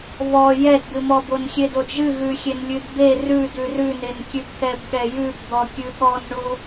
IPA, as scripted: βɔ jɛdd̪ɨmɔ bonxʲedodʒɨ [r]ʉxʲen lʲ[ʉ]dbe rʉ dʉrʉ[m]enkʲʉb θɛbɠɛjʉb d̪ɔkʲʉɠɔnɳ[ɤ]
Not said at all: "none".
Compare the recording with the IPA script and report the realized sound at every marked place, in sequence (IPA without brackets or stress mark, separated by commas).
ɣ, ʉ, n, o